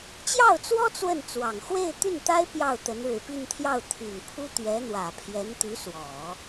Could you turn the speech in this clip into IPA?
t͡ɕ j ɑ˥˩ ʊ̯ t͡s w ɔ˥ t͡s w ə˥˩ n t͡s w ɑ˨˩ ŋ x w e˥˧ ɪ̯ t̪ y˥˩ n t̪ a˥ ɪ̯ p j ɑ˥˩ ʊ̯ t̪ ə˧˥ n ɻ ɻ̩˨˩ p i˥˧ n t̪ʰ j ɑ˥˩ ʊ̯ t̪ʰ y˨˩ n pʰ u˥ t̪ ɥ ɛ˧˥ n̪ w ä˨˩ pʰ j ɛ˧˥ n t̪ y˧˥ s w ɔ˨˩˦

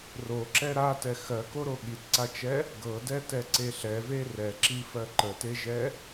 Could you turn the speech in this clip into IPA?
r o ǁ ɛ ɾ a t ɛ x ɜ k o ɾ o ɠ i t ǀ a t͡ʃ ɛ | ɡ ɤ d ɛ t ɛ ǀ e ɬ ɛ v e r ɛ ǁ i f ɜ ǃ ə t e ʒ ɛ

